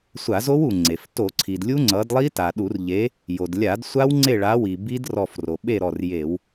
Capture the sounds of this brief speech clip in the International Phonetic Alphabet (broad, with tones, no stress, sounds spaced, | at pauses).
sʷ a˧˩˧ z o˦˥ w u˩ ŋ͡ǀ e˩ f t o˧˩˧ ǀʰ i˩ d lʲ u˦˥ ŋ͡ǀ ʌ˨˥ d lˠ i˦˥ t a˩ ɗ u˧˩˧ r ʎ e˨˥ | j o˩ d lʲ a˧˩˧ d sʷ a˦˥ w ŋ͡ǀ e˥˨ ɭ a˨˥ w i˩ b i˦˥ d r ɔ˧˩ f r o˩ ɓ e˥˨ ɾ ɔ˧˩ r j e˧˩˧ w